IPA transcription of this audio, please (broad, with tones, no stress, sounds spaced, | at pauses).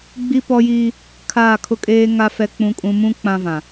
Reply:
ɡ͡b i˦ p ɔ˦ j i˦ | kʰ aː˦˨ kʰ ʊ˦ kʼ eː˦ ŋ a˦ f ɛ˦ k͡p ũ˦ kʼ ũ˦ m ũ˦ k͡p ã˦ v ã˨